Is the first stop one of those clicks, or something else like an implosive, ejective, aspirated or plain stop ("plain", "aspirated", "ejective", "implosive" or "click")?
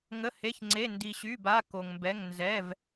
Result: click